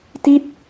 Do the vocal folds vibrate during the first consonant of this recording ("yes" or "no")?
no